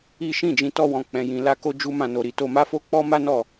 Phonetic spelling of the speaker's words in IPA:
i˦ ʃ ĩ˦˨ d͡ʒ ĩ˧ t ɔ˦ w ɔ̃˧ k͡p ɛ̃˧ j ĩ˧ l a˦ k o˦ d͡ʒ u˦ m ã˧ n o˧ ɾ i˧ t o˧ m a˦ f o˦ k͡p ɔ˦ m a˦ n ɔ˦˨

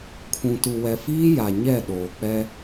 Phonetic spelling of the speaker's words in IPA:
kʰ ũ˨ t u˨ w ɛ˨ f iː˦ j a˨ ɲ ɛ˦˨ ɗ oː˨ k͡p ɛ˦

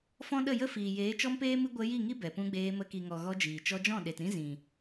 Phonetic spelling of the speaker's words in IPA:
f ɔ̃˦ ɗ ə˦˨ j ə˦ f iː˨ j eː˨˦ t͡ʃ ɔ˦ m p eː˦ m ɨ˦ ɡʷ ə˧ j i˦˨ ŋ i˦ b ɛ˨ p ũ˧ ɡ͡b eː˧ m ə˧ k i˨ ŋ ɔ˨ ɣ ɔ˧ d͡ʒ iː˨ t͡ʃ ɔ˧ d͡ʒ ɔ̃˦˨ ɗ e˨ t ɾ ĩ˦ z ĩ˨

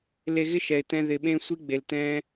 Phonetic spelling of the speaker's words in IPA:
l e˧ ɣ ɪ˦ ʃ ɛ˨ ɪ̯ t ɛ̃˧ ð ɪ˨ ɓ ẽ˦ sʷ i˦ ɡ͡b e˨ l t ɛ̃˦

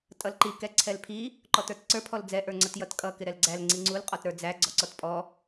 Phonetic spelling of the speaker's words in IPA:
tʼ ʌ l ǃ i k ɛ ǀʰ ɛ l pʰ i | ǃ ɔ t ə˞ t ǀ ə˞ pʰ ɔ l d͡z ɛ ʔ ə˞ ŋ͡ǀ ʌ t j ʌ t kʼ ʌ k ɪ ɾ ɛ l ɡ͡ǀ æ l ŋ͡ǀ i ŋ͡ǀ u l qʼ ɔ t ɾ ə˞ d͡z æ ɡ͡ǀ ɔ ǀ ɔ t pʼ ɔ

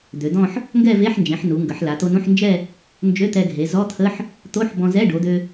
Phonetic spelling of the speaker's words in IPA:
d̪ ø˩˧ d̪ ɔ̃˥˧ ħ | ŋ ɡ ɛ˥˧ v e˧˥˧ ħ n d͡ʒ ẽ˩˧ ħ n u˩˧ ŋ ɡ ə˩˧ ħ l a˩˧ t̪ o˧ n ũ˧˥˧ ħ n d͡ʒ ɛ˥˧ | n d͡ʒ ø˧˥˧ t̪ ɛ˧ ɡʱ e˩˧ z ɔ˧˥˧ t̪ʰ ə˧˥˧ ħ | t̪ o˧˥˧ ħ b ɔ̃˧ z ɛ˧˥˧ ɖ o˩˧ d̪ ø˧

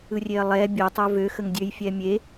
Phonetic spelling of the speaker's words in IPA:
ɯ rʲ e ɐ̯ lˠ ɛ bʲ ə tˤ ə v ø x ə ŋ dʲ ø j fʲ ɛ mʲ e

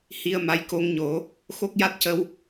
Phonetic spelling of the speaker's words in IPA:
h i˧ ə̯ m a˧˥ j k o˧ ŋ ɲ o˨˩˦ | x o˦˥ k̚ j a˦˥ t̚ c ə˧ w

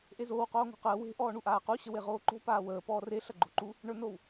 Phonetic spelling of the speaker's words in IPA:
ʔ e z oː w q oː ŋ o̤ q əː w e̤ ʔ ɔː ɳ u ʔ aː q u ɕ ə w e ʁ oː ǃ o̤ p aː w əː p ɔː r e ɬ ɐ ɡ͡ǃ o̤ ǃ u | ɳ ə˞ n o w

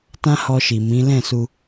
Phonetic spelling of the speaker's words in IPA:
t ã˦ h ɔ˧ ʃ i˨ m ĩ˨˦ l ɛ̃˦˨ s u˧

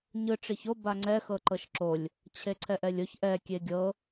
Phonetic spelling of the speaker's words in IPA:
ɲ ɯ ʈ͡ʂ i ç o b a ŋ͡ǀ ɛ x ɤ ǃ ɤ ʃ ǁ o lʲ | t͡ɕʰ e ǀʰ ɛ ʔ ɛ lʲ o ç ʔ ɛ kʲ e ɡʲ ɤ

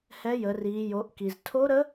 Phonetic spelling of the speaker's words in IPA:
h ɛ˧˥ j ə˩˧ r iː˩˧ j o˩˧ ʔ k i˩ z tʰ o˧˥ ɾ ə˧˥

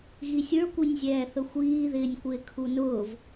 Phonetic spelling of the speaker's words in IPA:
ɣ i sʲ ə˞ kʷ i nʲ zʲ ɛː θ ə xʷ iː ð ɪː nʲ kʷ ɪː kʰ u n ʊː v

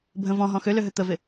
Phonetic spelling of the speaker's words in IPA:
bʱ ə̃ v ɔ̃ ɦ ɔ̃ x ø l ø ɦ ø t̪ ə v ɪ

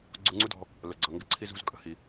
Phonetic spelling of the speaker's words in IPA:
ɡ͡ǀ u˧ ŋ͡ǀ u˥ d ɔ̤˧ | l ə˩ ɡ͡ǀ ʌ˩ ŋ ɡ ə˧ ǀʰ i˧ z ṳ˧ z kʼ ə̤˩ h i˩

